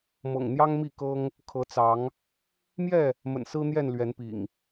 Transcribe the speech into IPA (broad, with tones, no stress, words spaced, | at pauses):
mɤ̰˨˩ŋn̪jɑ˦ŋmi˥˨ kɤ˦ŋ | kʰɤ˨˦t͡sɑ˨˦ŋ | mjɛ˥˨ | mə̰˨˩nsɹ̩˦n̪jɛ˥˨n lɥɛ˨˦npḭ˨˩ŋ